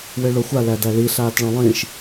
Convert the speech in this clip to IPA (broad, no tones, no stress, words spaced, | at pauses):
weɭoxʷa lædæli ɬaːtɭɔ̃lˠĩʃ